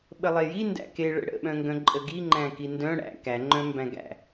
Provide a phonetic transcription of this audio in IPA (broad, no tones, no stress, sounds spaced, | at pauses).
ɓ ə lˠ e j i n d æ̰ k e ɭ ə̰ ɽ ə̰ ɓ œ̃ ŋ ɡ œ̃ ǃʼ ə ɡ i ŋ͡ǃ æ̃ k i n d œ̃ ɽ æ̰ k æ ŋ͡ǃ œ̃ m b æ̃ ɡ æ̰